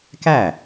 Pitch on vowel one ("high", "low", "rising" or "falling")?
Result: falling